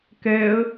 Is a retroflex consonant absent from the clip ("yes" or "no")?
yes